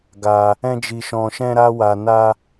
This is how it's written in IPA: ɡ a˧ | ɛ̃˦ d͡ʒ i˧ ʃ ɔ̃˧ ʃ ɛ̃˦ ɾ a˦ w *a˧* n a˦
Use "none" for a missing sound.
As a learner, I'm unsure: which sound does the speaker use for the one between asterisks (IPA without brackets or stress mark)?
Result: a˧